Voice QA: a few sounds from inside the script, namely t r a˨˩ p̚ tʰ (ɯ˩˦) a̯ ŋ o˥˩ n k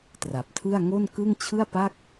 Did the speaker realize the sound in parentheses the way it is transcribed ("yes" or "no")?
no